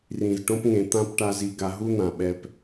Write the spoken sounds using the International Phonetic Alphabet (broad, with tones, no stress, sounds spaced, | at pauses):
r ĩ˨ z ʈ õ˧ p ŋ ẽ˨ t̪ ã˦ p ʈ a˧ z i˦ ɡ a˧ ɦ u˦ n̪ ã˨ ɓ ɛ˧ p